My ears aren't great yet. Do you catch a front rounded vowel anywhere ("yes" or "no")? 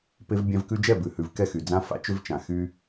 yes